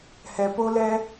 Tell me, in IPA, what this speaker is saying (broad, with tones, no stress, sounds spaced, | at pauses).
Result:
h ɛ˨ p o˦ l ɛ˦